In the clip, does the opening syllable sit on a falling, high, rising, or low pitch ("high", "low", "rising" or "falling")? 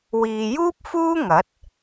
low